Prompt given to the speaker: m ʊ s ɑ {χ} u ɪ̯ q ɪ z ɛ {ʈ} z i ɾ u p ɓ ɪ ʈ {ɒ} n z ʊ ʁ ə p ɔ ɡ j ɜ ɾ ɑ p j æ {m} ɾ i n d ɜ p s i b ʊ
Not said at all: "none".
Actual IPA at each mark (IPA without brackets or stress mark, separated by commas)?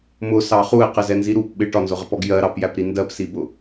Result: χ, n, ɒ, p